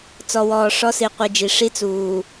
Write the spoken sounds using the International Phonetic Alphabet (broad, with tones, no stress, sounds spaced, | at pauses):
t͡s ɔ˨ w ɔː˨ ʂ ɔ˦ s i˨ qʷ i˨ d͡ʒ i˨ ʂ i˦ t͡s uː˨